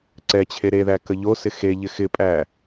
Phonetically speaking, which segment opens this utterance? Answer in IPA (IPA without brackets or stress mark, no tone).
ǀ